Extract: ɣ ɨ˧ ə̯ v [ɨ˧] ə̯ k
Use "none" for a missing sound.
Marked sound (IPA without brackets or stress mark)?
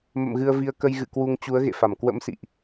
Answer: i˧